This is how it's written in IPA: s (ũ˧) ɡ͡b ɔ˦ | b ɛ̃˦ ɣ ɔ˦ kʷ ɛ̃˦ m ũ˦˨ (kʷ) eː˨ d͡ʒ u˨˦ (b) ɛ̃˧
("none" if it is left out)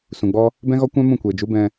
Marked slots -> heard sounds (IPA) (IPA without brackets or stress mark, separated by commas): ũ˨, kʷ, b